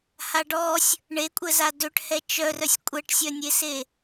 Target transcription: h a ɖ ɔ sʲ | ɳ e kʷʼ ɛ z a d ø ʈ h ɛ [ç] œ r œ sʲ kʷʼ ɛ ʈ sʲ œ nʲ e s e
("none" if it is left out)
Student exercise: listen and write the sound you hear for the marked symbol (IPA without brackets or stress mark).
t͡ʃ